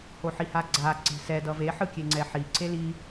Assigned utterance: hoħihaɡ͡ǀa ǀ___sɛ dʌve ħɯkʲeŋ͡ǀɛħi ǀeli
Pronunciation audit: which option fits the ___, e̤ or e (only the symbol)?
e̤